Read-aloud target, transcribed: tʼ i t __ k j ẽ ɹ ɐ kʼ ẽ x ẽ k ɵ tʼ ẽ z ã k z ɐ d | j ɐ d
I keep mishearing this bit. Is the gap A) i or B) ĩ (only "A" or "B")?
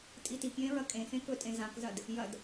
A